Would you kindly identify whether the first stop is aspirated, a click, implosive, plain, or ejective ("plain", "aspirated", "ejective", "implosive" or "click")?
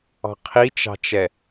aspirated